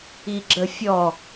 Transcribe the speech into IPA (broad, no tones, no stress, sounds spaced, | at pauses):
i ɡ͡ǁ ə fʲ ɔ